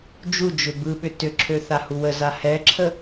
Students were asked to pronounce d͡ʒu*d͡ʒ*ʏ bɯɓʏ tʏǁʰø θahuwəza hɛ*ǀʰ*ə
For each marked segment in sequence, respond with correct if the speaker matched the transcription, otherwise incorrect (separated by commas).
correct, incorrect